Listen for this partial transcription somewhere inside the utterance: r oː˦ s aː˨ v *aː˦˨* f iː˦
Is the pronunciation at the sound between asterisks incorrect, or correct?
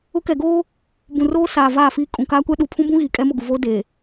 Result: correct